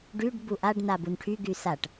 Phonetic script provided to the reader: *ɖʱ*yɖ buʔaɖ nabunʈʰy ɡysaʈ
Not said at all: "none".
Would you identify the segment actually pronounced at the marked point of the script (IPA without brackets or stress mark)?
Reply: ɖ